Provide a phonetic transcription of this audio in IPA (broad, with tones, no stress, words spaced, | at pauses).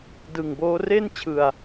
dɯ˨˩ŋboː˦˥ re˥˩nt͡ɕʰɯ˨˩a̯